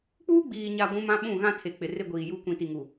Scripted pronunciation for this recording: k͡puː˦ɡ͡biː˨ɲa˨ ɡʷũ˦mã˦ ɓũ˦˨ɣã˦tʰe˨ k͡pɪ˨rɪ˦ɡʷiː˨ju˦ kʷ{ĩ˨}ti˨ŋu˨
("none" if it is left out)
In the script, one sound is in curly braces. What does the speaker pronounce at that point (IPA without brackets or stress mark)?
ĩ˨